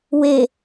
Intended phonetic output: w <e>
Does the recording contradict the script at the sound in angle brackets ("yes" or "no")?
no